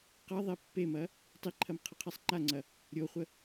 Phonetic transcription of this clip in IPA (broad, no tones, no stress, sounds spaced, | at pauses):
q ɐ ðˤ e pː e m ɐ | tˤ i ǃʰ ɐ m qʰ ɐ qʰ e sˤ ŋ͡ǃ a ŋ͡ǀ ɐ | ɾʲ o χʷ ə